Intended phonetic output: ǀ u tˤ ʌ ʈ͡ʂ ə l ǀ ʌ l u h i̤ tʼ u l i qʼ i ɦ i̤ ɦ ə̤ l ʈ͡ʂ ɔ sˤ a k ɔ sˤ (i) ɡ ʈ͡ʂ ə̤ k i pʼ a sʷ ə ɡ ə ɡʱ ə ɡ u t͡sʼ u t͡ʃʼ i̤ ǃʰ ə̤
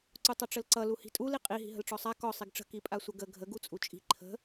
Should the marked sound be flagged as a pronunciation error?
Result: no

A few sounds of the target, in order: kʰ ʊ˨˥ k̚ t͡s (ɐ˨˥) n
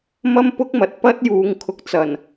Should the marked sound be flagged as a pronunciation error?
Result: yes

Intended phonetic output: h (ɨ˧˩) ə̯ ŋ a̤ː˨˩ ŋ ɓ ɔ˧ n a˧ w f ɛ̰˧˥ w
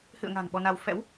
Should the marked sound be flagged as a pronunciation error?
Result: yes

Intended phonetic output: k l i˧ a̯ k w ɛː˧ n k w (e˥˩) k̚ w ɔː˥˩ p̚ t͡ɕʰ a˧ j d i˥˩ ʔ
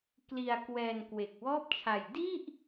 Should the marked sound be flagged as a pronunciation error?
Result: yes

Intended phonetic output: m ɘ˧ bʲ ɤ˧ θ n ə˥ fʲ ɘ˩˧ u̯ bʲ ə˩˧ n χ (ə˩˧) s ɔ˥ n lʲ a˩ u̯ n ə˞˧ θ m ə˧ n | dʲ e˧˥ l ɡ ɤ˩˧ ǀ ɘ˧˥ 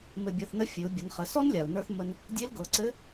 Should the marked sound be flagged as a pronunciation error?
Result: no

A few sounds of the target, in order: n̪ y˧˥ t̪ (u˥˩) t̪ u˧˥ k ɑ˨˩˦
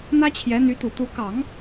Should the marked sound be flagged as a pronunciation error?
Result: yes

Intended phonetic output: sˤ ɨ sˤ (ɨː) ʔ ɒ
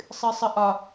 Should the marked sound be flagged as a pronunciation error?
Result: yes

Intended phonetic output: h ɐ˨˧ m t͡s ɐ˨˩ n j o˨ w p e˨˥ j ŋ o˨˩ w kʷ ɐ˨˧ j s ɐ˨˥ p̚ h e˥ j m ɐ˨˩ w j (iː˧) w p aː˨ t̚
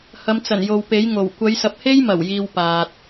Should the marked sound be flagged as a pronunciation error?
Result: no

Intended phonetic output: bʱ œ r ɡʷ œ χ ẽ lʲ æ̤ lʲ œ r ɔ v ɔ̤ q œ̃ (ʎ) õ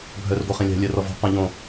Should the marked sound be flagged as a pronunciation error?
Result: no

